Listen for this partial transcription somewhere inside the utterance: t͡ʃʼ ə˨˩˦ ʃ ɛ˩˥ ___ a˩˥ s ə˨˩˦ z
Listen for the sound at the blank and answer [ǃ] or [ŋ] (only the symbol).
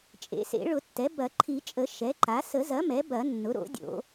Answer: ǃ